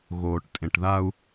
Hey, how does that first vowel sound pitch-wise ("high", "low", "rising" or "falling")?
low